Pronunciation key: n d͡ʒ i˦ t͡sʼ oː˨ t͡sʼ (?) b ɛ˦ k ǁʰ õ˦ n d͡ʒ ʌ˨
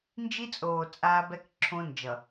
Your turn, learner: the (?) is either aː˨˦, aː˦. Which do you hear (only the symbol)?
aː˦